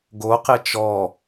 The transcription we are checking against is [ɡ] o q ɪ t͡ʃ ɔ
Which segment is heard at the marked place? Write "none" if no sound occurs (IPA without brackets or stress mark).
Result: ɡ